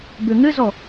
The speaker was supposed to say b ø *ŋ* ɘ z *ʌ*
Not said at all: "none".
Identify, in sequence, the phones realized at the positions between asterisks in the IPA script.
ŋ, ɔ

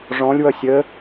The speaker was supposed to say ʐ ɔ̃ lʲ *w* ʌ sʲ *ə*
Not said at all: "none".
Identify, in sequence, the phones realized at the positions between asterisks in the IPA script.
w, ə

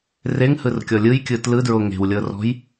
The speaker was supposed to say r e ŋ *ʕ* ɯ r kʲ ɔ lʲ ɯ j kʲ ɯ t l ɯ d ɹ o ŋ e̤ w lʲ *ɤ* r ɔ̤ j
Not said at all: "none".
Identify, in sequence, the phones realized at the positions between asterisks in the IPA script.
h, ɤ

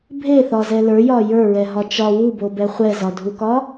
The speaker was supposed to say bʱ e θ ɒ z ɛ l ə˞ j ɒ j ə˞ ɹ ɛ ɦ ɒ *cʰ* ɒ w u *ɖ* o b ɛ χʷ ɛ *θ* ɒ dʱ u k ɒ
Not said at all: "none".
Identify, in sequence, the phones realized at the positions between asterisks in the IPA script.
t͡ʃ, b, z

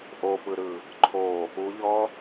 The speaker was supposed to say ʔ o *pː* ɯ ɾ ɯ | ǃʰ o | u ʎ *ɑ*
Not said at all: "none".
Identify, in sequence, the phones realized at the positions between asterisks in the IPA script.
p, ɔ

